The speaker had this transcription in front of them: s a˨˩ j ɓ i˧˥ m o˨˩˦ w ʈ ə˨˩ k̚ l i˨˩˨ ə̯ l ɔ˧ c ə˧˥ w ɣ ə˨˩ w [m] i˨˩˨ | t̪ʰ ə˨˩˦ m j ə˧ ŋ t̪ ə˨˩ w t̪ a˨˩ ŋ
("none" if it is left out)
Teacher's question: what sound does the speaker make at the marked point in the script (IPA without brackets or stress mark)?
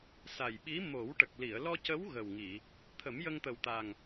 ŋ